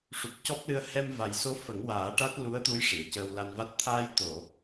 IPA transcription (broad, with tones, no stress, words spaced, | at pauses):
ʂu˨˩p̚cɔ˦˥p̚lɨ˧ə̯ hɛ˧mva˨˩jso˧˥ fə˨˩˦ŋwaː˨˩˦ʈa˦˥t̚ lu˧˥ə̯t̪u˧˥j ʂi˨˩˨ə̯cəː˧w la˧nva˦˥t̚ t̪ʰaː˧jt̪o˨˩˨